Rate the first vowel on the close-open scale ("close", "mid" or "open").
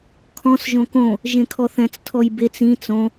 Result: mid